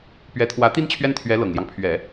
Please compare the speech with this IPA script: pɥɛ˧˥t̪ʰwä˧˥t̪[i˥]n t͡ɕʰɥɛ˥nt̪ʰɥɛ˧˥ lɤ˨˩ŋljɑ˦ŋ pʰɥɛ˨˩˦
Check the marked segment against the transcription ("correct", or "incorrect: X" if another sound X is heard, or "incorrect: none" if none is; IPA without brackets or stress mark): correct